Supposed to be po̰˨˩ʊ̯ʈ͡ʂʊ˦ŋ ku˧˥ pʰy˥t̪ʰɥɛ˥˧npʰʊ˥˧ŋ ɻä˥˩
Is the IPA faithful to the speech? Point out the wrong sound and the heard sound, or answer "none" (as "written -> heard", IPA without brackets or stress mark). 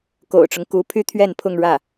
p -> k